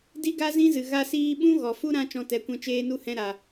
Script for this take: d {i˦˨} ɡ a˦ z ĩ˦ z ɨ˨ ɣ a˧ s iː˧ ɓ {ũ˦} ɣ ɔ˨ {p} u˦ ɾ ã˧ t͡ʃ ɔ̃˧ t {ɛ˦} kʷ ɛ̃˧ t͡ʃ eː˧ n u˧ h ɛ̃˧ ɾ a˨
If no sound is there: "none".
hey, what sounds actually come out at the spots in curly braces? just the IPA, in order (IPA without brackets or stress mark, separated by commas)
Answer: i˦, ũ˦, f, ɛ˨˦